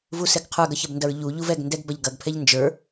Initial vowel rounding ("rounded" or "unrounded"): rounded